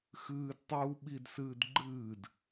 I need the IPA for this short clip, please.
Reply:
x ɨː d tˤ uː ɓ i d s ɨː d ɡ͡ǃ ɨː d

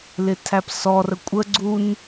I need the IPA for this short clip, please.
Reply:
l ɪ tʰ æ p s ɔ r ə kʷʼ ə ɡ͡ǀ u n

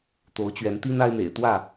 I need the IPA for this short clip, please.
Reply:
t̪ o˨˦ ʊ̯ t͡ɕ ɥ ɛ˨˦ n t̪ i˦ n a˦ ɪ̯ n̪ ḛ˨˩ ɪ̯ t̪ w ä˥˨

